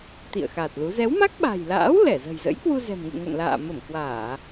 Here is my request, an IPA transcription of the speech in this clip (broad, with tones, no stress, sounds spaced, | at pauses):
t̪ ḭ˧˨ ə̯ x a˨˩ t̚ l u˨˦ z ɛ˨˦ w m a˦˥ k̚ ɓ a̤˨˩ j l a̰ː˧˥ w l ɛ˧˩ z ə̤˨˩ j z ə̰˧˥ j k w u˧ z ɛ̤˨˩ m ŋ ɨ̰˧˨ ŋ o̰˧˨ n l a̰ː˧˨ m ə˧˩ m k w aː˧˩˨